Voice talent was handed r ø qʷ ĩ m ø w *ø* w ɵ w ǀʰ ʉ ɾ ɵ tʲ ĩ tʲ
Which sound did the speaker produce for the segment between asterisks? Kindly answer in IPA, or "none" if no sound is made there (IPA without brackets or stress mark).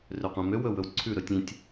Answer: ɵ